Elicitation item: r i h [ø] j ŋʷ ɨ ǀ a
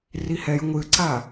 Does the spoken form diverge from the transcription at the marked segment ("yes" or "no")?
yes